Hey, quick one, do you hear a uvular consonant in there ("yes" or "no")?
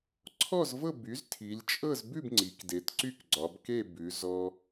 no